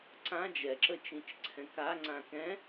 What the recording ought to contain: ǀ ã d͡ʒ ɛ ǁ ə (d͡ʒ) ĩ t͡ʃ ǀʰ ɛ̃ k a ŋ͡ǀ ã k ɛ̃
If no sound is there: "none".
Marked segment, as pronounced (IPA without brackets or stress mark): t͡ʃ